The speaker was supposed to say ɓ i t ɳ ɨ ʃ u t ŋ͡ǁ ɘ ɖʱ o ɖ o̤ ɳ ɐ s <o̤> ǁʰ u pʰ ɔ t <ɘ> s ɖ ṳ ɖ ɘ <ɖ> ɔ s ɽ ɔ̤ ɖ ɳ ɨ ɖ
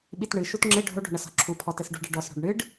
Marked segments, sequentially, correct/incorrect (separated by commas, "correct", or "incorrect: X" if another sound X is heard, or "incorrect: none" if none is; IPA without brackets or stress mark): incorrect: ɔ̤, correct, correct